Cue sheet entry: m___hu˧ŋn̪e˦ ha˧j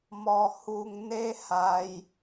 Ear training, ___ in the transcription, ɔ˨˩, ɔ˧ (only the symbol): ɔ˧